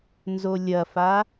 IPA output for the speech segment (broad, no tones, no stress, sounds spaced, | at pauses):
n z o lʲ ɐ f a